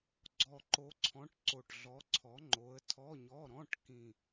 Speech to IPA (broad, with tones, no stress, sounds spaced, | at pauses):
ɡ͡ǀ ɔ˨˩ ǃ o˨˦ ǀʰ ɔ̃˨˦ ʈ ǀ o˨˩ ʈ ɮ ɔ˨˦ ǀʰ ɔ˨˦ ŋ͡ǃ o˨˦ ə̯ tʰ ɔ˧˥˧ ɲ ɔ˧˥˧ ɾ ɔ̃˧˥˧ ʈ k ĩ˨˩